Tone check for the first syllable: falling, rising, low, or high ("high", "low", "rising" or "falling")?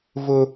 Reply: high